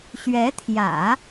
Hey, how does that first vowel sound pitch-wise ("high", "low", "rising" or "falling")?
rising